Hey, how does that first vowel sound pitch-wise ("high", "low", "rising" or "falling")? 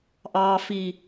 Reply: low